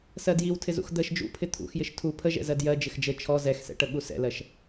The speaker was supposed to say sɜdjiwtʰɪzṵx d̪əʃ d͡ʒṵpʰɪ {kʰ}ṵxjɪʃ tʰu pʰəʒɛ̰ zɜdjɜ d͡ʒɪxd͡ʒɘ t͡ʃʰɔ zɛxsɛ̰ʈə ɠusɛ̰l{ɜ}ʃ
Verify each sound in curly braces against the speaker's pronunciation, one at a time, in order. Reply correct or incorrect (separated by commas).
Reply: incorrect, correct